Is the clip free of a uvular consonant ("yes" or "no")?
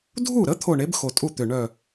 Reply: yes